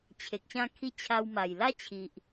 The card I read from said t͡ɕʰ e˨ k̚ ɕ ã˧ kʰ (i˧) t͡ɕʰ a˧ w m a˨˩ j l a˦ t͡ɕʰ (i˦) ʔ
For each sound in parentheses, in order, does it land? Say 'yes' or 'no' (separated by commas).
yes, no